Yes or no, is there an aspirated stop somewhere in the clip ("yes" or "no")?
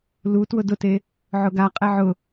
no